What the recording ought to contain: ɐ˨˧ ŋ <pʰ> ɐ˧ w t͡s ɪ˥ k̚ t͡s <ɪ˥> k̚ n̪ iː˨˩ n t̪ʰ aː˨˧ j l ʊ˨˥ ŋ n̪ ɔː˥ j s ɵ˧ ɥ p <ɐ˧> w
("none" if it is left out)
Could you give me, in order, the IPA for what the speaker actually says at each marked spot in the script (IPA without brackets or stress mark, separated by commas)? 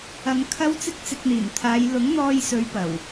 kʰ, ɪ˧, ɐ˨˩